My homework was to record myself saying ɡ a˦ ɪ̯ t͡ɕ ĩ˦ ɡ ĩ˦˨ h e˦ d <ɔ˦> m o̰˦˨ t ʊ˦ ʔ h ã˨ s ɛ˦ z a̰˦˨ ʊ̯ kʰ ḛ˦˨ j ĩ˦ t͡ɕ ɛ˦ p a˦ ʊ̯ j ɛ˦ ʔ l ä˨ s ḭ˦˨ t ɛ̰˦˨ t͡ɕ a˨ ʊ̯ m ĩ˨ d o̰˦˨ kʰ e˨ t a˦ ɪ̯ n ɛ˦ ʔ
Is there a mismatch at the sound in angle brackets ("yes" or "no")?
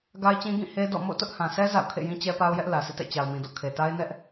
yes